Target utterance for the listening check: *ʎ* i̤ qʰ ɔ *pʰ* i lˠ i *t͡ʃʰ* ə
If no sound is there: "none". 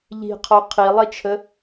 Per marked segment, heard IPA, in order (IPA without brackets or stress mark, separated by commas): ʎ, qʰ, t͡ʃʰ